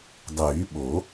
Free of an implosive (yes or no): no